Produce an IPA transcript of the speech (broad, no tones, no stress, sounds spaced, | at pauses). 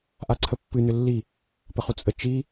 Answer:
ʔ a ǀʰ ə pː ɨ n ʏ lː i | p ə χ u t͡sʼ ə t͡ʃ i